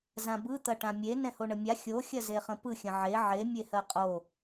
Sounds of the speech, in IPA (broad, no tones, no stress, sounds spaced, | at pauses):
z ã b ɯ t̪ ɐ ʈ ã mʲ e n ɛ̃ h o ɳ ə mʲ a xʲ o xʲ ɐ z e χ ə̃ p ɯ xʲ ə̃ ʕ e ʕ e mʲ e h ɜ qʼ o